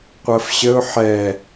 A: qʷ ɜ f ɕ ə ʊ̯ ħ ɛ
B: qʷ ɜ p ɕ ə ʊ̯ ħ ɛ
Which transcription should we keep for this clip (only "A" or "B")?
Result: A